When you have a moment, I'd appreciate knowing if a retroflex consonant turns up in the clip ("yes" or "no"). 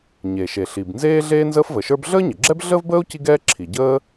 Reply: no